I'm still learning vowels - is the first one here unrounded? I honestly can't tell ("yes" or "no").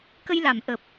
yes